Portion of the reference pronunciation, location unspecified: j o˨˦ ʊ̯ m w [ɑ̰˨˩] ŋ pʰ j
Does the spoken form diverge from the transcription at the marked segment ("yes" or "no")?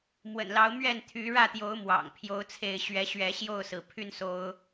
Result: no